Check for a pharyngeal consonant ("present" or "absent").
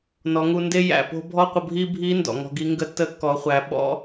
absent